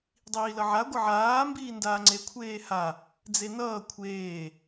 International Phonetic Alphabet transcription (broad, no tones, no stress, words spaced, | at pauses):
dˤiːlʌʕa ɡʷʌʕaː mbiːndaːŋ͡ǀe kʷʰeːha | d͡zenʌː kʷʰeː